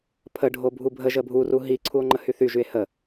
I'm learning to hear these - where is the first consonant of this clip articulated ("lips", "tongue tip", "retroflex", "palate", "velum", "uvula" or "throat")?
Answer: lips